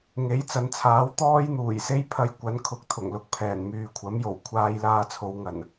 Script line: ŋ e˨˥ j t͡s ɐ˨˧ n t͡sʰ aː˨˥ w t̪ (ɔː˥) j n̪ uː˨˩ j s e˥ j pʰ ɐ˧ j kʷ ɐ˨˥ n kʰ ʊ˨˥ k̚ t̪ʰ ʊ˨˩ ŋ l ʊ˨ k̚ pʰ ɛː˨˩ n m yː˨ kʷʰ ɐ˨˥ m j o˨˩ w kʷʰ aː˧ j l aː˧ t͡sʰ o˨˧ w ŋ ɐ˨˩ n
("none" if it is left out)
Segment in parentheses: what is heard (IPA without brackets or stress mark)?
ɔː˥